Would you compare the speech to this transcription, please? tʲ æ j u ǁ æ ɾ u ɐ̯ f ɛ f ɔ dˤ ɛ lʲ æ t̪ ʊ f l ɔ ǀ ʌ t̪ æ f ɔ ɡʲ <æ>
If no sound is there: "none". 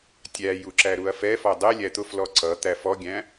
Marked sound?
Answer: æ̃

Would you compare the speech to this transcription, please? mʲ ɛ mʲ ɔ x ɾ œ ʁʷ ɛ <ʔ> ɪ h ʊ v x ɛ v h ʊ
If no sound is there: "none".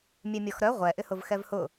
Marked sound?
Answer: ʔ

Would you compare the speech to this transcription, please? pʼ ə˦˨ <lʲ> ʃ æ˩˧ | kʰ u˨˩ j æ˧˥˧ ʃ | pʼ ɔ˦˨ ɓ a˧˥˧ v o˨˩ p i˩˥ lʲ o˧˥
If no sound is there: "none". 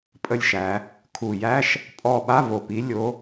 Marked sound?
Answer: lʲ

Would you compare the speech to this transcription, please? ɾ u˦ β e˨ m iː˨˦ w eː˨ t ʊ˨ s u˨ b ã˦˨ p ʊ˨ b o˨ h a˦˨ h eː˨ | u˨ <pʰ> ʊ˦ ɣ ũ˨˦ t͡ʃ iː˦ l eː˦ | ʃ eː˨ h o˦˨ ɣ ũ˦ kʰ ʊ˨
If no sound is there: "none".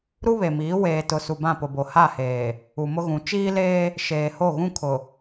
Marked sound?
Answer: m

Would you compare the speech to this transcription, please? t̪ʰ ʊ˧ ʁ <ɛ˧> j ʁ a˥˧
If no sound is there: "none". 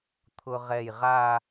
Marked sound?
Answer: ɛ˧˩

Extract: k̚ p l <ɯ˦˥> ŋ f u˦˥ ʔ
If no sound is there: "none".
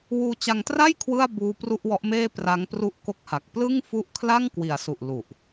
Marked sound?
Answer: ɯ˥˩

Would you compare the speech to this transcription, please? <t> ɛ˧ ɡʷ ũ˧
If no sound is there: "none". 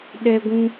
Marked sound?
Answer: ɗ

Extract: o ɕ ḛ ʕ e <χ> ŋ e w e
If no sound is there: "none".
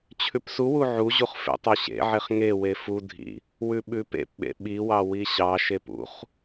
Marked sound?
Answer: χ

